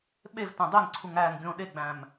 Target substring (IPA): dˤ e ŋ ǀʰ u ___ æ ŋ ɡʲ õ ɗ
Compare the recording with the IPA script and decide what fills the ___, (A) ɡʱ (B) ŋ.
B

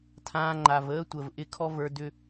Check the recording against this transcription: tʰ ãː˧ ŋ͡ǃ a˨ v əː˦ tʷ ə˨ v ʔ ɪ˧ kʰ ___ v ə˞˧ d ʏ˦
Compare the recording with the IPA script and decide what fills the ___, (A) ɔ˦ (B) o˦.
A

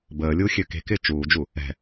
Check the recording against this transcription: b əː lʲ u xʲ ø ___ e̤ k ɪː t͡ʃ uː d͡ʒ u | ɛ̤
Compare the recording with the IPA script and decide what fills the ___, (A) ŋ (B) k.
B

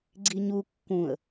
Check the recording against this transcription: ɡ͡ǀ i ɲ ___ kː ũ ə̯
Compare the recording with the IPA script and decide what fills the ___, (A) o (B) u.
B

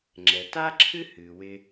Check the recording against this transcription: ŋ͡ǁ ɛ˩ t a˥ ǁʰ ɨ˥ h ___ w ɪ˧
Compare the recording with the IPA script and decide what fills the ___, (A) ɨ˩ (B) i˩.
A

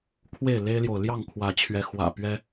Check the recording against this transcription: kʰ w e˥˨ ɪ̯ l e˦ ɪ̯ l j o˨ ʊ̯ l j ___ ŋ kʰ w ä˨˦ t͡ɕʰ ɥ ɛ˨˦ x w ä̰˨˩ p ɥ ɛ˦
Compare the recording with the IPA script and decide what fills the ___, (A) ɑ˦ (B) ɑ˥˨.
B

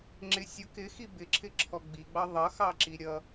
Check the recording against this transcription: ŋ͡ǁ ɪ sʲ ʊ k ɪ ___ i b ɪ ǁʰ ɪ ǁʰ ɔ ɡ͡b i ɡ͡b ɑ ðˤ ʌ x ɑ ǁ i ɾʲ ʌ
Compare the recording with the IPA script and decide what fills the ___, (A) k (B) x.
B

